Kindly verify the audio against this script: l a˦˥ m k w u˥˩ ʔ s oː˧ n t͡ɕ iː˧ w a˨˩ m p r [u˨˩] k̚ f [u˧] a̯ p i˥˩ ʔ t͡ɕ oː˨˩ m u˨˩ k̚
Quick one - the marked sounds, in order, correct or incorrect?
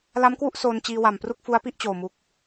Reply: incorrect, incorrect

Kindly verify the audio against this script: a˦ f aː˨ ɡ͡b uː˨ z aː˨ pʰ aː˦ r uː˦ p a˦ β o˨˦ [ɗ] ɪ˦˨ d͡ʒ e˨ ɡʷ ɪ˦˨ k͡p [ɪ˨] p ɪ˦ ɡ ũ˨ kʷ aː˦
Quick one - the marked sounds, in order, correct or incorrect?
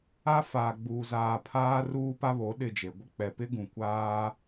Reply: correct, incorrect

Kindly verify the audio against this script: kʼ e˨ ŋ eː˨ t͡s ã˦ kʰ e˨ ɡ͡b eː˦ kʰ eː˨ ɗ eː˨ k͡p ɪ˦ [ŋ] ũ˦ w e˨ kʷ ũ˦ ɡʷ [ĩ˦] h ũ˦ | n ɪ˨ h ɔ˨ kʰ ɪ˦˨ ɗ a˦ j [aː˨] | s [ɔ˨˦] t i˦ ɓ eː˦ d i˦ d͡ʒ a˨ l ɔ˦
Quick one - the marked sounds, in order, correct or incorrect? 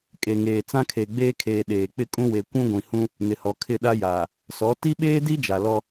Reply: incorrect, incorrect, correct, correct

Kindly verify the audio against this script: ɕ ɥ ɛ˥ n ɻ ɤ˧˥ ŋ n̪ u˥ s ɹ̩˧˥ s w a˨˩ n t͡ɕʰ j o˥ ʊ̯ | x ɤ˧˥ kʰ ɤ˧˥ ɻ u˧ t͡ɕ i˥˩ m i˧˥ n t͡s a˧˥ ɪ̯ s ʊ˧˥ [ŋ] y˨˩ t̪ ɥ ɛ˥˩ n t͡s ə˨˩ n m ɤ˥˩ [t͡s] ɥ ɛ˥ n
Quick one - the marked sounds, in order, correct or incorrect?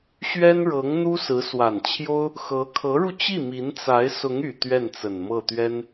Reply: correct, incorrect

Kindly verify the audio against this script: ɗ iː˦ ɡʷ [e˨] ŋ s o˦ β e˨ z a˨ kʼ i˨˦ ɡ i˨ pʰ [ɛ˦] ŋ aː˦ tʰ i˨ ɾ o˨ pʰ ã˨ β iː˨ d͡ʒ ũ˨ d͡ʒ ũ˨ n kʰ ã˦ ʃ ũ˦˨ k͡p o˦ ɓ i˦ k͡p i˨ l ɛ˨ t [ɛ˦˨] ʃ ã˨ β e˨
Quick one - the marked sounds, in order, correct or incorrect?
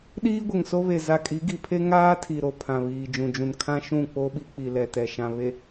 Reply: correct, incorrect, incorrect

